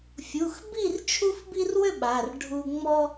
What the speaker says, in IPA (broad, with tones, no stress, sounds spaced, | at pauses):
fʲ u˩˧˩ x b i˥˨ r t͡ʃʰ u˦ f b i˦ r w ʏ˥˨ ɓ a˩˧˩ r ɖʱ u˦ ŋ͡m ɔ˦